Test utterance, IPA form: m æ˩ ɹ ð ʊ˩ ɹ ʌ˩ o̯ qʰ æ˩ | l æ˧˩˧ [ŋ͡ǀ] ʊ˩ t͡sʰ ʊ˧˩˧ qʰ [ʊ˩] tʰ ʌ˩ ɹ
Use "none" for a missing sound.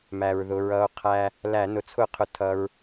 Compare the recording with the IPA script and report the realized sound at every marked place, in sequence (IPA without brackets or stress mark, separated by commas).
n, ʊ˩